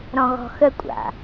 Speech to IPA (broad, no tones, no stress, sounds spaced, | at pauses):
ɾ ɔ̃ ɣ ɔ̤ x ə kʷʼ a̰